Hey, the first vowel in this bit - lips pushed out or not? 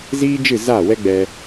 no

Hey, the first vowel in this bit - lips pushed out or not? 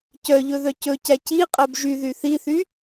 yes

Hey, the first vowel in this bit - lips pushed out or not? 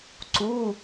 yes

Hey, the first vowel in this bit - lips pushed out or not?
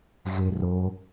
no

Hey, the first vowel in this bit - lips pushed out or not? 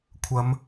no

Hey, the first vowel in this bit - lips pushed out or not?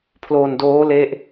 yes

